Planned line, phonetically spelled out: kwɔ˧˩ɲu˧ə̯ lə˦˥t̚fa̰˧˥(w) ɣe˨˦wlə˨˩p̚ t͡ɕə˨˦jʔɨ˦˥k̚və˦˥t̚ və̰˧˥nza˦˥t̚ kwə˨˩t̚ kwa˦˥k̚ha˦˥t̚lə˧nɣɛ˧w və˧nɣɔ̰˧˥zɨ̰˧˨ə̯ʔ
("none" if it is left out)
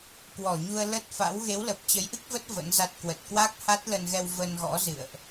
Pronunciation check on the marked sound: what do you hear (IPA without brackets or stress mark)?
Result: w